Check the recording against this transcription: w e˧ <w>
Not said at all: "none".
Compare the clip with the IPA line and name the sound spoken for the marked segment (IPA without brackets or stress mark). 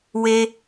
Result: none